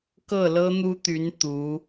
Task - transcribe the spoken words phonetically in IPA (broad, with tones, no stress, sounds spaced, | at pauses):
k ɤ˥˩ l ɤ˥ n̪ u˥ t̪ y˧˥ n t̪ u˧˥